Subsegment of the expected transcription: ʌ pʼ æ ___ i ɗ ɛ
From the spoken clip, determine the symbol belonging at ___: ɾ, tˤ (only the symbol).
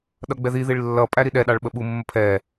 ɾ